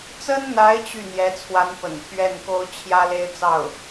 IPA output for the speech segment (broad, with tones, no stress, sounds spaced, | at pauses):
t͡s ə˥ n n̪ a˧˥ ɪ̯ t͡ɕ y˥˩ n̪ j ɛ˧˥ t͡sʰ w a˧˥ n p ə̰˨˩ n t̪ʰ ɥ ɛ˥˩ n k o˥ ʊ̯ t͡ɕʰ j ä˥ l e˥ ɪ̯ t͡s ɑ˥˩ ʊ̯